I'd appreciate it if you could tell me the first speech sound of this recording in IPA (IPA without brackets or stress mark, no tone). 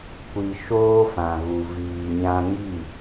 kʷ